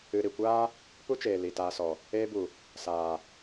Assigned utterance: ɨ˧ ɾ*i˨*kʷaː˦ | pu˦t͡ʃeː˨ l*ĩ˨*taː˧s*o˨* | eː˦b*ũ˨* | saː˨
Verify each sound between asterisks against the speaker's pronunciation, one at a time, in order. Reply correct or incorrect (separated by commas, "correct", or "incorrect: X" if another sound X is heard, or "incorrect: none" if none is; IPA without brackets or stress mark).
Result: correct, incorrect: i˨, incorrect: ɔ˨, incorrect: u˨